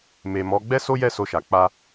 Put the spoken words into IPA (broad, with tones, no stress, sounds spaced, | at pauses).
m e˨ m ɔ˨˦ ɡ͡b ɛ˦ s o˦ j ɛ˦˨ s o˧ ʃ a˨ k͡p a˧